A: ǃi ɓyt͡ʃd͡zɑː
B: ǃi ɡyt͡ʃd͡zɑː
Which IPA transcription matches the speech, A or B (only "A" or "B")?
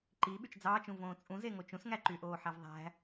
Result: A